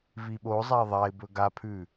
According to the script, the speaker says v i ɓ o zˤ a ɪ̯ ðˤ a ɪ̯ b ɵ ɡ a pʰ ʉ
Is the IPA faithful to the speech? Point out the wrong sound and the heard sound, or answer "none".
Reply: none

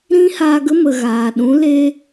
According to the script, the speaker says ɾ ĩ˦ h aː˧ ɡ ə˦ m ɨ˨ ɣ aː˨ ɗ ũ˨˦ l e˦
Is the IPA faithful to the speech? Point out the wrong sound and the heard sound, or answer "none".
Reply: ɨ˨ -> ə˨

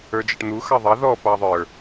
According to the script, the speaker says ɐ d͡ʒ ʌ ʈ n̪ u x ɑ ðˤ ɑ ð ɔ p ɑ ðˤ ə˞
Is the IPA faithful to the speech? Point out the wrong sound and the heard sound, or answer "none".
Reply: ɐ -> ə˞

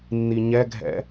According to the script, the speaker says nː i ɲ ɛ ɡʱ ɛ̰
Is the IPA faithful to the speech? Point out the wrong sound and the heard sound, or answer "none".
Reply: none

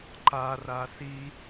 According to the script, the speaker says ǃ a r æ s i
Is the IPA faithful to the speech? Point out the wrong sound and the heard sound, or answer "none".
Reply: æ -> a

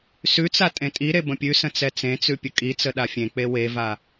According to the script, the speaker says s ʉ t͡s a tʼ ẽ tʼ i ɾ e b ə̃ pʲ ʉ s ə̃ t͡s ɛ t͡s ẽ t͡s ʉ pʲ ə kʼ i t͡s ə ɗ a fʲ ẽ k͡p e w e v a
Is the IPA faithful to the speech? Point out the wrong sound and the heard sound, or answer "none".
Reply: none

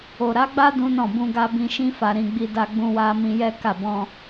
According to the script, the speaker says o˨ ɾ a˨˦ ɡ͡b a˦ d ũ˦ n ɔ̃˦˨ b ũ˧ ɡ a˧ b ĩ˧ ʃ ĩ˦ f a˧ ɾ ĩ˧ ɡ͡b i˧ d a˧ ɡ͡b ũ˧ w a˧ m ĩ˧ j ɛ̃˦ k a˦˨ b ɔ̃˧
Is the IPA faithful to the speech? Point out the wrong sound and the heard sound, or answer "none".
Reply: ɛ̃˦ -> ɛ˦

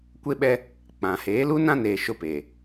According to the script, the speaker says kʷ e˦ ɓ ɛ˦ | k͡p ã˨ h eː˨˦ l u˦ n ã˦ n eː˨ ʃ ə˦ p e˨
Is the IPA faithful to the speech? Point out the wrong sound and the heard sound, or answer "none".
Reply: ə˦ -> ʊ˦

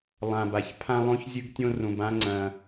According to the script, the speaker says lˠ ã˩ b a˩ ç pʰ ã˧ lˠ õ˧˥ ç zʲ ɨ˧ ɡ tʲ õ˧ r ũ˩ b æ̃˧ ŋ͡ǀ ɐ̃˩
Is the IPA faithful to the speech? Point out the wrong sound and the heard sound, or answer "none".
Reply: æ̃˧ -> ã˧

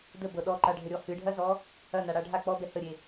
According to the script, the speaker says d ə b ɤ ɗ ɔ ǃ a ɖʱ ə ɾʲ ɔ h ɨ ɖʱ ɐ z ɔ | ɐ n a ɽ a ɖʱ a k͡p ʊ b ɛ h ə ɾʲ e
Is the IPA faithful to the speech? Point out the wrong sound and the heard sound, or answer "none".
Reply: ʊ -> ɔ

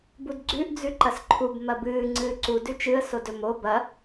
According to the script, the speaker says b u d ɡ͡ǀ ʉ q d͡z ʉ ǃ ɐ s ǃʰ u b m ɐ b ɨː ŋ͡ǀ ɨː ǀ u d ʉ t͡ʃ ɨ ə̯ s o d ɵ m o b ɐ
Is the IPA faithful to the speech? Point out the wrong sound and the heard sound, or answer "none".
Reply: q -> ʔ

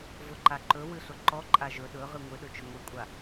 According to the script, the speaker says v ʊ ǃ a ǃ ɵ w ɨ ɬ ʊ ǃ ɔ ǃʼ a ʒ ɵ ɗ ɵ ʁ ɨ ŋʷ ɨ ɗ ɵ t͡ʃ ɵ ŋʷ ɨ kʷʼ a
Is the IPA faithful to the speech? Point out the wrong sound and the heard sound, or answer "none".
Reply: none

